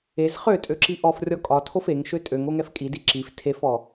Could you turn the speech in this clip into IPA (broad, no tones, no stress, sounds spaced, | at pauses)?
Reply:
e z χ ø tʼ ø ǁ i ʔ ɔ f rʲ ɔ kʼ ɒ tʰ o f e ŋ ʃ ø tʼ ø ŋ o ŋ ɛ f kʼ i d i ǁ i f tʰ e f ɔ